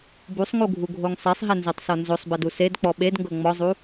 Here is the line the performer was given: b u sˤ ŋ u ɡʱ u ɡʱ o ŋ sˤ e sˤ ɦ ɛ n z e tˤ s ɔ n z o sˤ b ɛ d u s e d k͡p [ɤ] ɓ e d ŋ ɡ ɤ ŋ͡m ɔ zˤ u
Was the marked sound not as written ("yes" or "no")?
yes